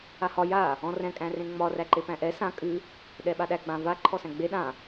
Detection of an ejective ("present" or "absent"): present